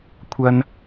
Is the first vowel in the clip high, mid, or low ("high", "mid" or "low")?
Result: low